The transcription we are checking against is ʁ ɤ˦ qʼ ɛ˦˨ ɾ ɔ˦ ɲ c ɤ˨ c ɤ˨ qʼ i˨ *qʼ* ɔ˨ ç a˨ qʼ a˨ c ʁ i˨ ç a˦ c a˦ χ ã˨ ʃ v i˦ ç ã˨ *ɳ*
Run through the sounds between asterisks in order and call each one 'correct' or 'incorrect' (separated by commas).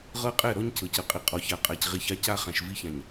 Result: correct, incorrect